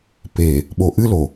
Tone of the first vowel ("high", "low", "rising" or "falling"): low